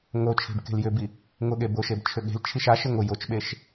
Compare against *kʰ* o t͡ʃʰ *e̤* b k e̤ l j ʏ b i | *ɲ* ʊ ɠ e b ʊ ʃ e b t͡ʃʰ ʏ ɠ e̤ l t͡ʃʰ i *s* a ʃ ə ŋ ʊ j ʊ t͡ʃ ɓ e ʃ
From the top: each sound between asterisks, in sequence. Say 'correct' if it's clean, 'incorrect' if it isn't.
incorrect: ŋ, correct, incorrect: ŋ, incorrect: ʃ

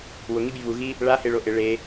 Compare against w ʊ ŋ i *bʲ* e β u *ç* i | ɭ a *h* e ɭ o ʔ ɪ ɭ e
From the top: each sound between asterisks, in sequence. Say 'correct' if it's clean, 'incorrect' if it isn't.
correct, incorrect: ɣ, correct

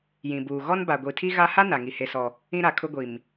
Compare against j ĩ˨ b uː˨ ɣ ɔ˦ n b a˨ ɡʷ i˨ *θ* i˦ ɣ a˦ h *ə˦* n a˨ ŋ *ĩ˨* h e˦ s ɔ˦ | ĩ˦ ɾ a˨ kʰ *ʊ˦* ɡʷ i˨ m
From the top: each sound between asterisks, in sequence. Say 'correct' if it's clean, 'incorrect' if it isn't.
incorrect: tʰ, incorrect: a˦, incorrect: i˨, correct

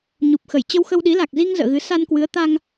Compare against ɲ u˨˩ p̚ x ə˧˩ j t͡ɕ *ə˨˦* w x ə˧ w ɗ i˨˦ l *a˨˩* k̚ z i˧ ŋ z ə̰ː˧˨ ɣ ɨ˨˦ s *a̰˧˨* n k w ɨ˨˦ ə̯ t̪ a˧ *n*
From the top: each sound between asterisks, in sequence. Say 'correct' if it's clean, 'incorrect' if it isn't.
incorrect: ə˧, correct, incorrect: a˧, incorrect: ŋ

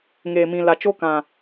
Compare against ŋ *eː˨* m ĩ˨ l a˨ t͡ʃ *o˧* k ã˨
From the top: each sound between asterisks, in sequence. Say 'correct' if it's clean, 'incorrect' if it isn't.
correct, incorrect: o˦

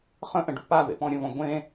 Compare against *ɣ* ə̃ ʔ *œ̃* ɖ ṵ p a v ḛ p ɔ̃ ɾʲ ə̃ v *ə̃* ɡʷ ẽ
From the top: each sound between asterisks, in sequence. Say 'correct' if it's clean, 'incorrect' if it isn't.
incorrect: χ, incorrect: ə̃, incorrect: ɔ̃

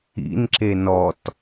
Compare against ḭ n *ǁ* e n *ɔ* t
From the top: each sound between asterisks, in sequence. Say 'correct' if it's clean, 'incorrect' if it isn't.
correct, correct

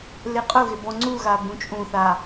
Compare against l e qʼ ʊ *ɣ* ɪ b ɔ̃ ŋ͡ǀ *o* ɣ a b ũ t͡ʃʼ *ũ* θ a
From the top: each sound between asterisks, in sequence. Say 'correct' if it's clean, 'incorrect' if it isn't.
correct, incorrect: u, correct

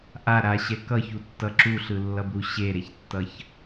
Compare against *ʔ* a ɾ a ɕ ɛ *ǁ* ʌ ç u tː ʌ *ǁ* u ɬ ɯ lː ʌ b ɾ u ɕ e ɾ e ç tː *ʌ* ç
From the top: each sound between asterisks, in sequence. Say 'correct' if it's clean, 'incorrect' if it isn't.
correct, incorrect: k, correct, correct

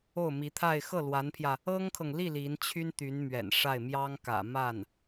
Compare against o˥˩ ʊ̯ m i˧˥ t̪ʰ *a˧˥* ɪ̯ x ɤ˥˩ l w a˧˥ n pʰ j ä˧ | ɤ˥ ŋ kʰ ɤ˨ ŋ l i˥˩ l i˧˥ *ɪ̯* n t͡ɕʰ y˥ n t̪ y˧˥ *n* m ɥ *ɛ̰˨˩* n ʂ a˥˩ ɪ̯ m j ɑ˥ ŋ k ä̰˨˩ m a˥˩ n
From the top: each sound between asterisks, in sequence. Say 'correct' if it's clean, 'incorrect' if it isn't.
incorrect: a˥˧, incorrect: none, correct, correct

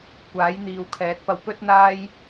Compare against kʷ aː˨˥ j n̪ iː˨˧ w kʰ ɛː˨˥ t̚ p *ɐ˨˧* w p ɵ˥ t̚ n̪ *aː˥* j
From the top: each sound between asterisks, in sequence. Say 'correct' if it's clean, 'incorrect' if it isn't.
incorrect: ɐ˧, correct

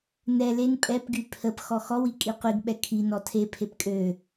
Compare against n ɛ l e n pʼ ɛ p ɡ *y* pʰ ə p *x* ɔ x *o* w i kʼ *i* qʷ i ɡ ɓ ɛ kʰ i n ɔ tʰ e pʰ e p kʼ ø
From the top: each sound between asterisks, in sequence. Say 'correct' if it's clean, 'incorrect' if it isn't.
correct, correct, incorrect: ɔ, correct

